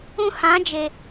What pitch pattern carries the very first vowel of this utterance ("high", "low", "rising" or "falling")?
high